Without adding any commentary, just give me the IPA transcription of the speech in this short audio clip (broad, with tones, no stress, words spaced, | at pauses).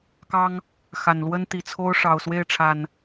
kɑ˦ŋ | xa˨˩nlwə˦nt̪i˨˩t͡sʰo˦ʊ̯ ʂɑ˨˩ʊ̯swe˥˨ɪ̯ʈ͡ʂʰa˨˩n